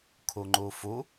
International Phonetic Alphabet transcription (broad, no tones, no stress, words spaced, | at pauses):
kʰuŋ͡ǃufu